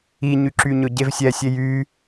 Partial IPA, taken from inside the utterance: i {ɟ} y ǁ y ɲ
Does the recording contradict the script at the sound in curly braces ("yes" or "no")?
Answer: yes